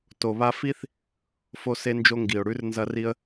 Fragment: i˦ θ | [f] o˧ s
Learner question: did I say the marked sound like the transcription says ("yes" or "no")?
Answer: yes